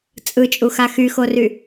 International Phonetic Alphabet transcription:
t͡sʼɯt͡ʃʼuxa xyxory

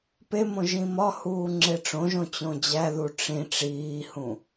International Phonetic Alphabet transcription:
pemõ ʒĩmɒhuː ŋ͡ǁeʈ͡ʂõʒõ t͡ɕõd͡ʑæðu ʈ͡ʂĩ ʈ͡ʂiːhũ

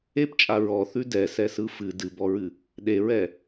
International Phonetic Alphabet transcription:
ept͡ʃʼa ɹɔθʉ dɛsɛsɯ fɨ dɨbɔɹɨ | ɗeɹɛ

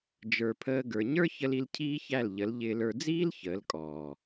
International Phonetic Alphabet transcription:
d͡ʒə˞˨pʰəː˧ ɡə˞˨ɲə˞˦çə˧l i˧lcʰiː˦çæ˦˨lʎə˨˦l ʎɪː˧lə˞˧ d͡ziː˦l çəː˨˦lkʼɔː˨

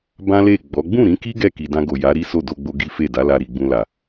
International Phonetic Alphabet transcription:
bã˦le˦˨ɡ͡bɔ˨˦ ɡ͡bũ˦˨ɾĩ˨˦ki˦ ɡɛ˦˨ ki˨dã˧ɡo˨ ja˨˦ɾi˦so˦˨ do˧ɡ͡bo˧ ɡi˦fe˦˨ da˨˦la˧ɾi˨ɡ͡bũ˧ la˨

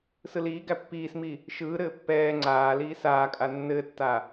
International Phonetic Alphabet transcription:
sɯliːɡæ pːiːsmi | ʃɯːɾɘː pːɛː ŋ͡ǀaːliː saːkʼa nːɘtːa

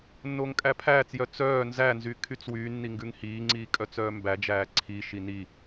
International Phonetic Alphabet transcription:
nːoːŋkʼæpʰæːt͡sjœ t͡sœː nzænzy kʰyt͡swyːnːi ŋɡʉŋhiːŋ͡ǀiː kʼœt͡sœːmbæd͡ʒæː ǀʰiʃi ni

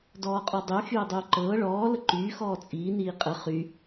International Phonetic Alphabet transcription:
dɔːqʼɔdˤy xyːdˤyːǃɤː ɭɔː ləǃyː xɔːt͡sʼiː niːqʼə χy

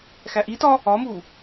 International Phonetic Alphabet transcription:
xæʔitɒ | ɒmu

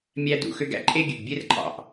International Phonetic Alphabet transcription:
mʲæ˦dṵ˨˦xø˦ɡ æ̰˦ǃʼe˦ɡʲø˨ɡbʲe˦r ǃʼɑ̰˨ʔ

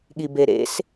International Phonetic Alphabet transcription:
ɠibeɾḛs

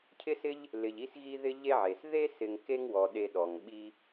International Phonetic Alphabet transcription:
cʰɪ˥sɪ˥ʎ | lɪ˨ʎi˥sɣi˥ ðɪ˥ʎe˥ʕe˩s ðe˥sɪ˨ŋ ke˥ŋwɔ˩ɗe˨ ɗɔ˩ŋɓi˦

